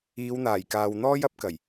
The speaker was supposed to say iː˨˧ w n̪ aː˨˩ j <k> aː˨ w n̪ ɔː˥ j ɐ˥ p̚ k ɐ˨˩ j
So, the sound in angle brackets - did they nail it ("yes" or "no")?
yes